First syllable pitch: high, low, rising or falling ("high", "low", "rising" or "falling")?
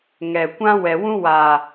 low